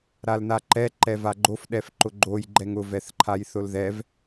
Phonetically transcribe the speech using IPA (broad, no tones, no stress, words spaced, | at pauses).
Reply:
ɾalnaǃɛ ǃɛvaɡ͡ǃof ɗɛfǃʊɡ͡ǃoj ɡ͡ǃɛŋʊ vɛθǃʰajθʊlðɛv